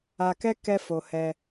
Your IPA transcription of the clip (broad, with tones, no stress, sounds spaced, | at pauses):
a˧ k ɛ˦ k ɛ˦ f o˧ h ɛ˧